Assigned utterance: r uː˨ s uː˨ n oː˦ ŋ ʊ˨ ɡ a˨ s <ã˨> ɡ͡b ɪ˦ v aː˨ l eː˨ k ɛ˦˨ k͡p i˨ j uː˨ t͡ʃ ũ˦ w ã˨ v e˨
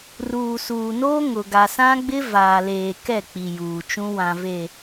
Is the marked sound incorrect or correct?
incorrect